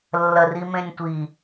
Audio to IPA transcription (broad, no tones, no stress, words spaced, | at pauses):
lːɐrimẽnʲtʷi